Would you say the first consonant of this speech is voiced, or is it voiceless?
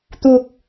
voiceless